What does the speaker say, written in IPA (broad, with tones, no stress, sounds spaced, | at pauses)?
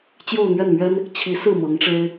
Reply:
t͡ɕ j o˥˧ ʊ̯ n̪ ɥ ɛ˥˩ n m ɥ ɛ˥ n | t͡ɕʰ i˧˥ s ɹ̩˥˩ m ɤ˧˥ ŋ ʈ͡ʂ e˥ ɪ̯